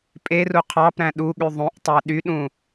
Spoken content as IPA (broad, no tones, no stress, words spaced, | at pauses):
pʼeru qʰɑpɾæ̃ ɗuɠy ðˤũʔtˤæ ɗyɗũ